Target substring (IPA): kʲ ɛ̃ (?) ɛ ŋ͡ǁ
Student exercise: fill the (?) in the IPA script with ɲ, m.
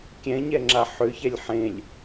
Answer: ɲ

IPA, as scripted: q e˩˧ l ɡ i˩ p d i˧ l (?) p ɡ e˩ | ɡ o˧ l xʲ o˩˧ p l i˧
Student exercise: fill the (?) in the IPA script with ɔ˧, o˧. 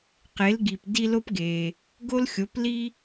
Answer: o˧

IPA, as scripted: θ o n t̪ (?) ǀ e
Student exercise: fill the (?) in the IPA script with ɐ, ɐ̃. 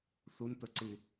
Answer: ɐ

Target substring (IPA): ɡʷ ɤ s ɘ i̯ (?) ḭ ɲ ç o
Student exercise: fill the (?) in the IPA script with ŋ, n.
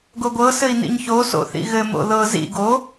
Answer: n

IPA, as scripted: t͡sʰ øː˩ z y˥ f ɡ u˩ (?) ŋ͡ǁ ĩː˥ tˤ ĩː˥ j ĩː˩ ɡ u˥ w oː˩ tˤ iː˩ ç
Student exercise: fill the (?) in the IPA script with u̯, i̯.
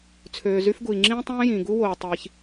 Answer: i̯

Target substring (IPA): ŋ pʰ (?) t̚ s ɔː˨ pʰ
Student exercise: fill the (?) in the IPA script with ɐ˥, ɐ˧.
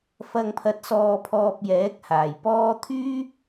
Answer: ɐ˧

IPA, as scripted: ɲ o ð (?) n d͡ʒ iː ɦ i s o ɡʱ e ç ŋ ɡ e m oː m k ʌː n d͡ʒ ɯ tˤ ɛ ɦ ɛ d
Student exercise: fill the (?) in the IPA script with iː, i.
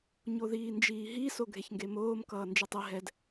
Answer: iː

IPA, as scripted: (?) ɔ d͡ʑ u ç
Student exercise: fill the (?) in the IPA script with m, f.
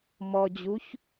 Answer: m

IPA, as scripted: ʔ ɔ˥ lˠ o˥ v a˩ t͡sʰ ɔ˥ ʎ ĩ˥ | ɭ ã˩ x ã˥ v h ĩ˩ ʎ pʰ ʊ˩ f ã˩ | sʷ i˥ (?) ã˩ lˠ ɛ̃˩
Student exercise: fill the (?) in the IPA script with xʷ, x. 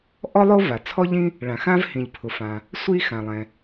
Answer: x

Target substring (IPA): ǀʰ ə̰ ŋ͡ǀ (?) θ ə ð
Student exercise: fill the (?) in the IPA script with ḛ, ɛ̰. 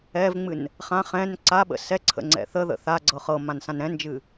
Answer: ɛ̰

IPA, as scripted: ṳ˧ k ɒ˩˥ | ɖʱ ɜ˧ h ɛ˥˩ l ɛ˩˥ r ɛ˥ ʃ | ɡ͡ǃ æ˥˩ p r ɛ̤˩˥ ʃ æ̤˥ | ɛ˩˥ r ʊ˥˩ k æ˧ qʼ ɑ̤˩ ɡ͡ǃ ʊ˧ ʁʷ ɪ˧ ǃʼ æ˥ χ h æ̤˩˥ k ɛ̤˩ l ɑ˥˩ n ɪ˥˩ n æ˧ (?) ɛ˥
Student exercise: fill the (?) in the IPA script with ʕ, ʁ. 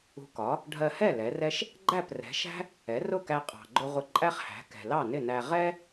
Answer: ʁ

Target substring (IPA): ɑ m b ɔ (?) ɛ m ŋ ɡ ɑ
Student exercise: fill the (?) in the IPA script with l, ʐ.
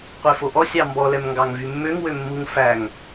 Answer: l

